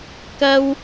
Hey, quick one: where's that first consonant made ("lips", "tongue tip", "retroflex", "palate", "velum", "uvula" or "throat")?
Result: velum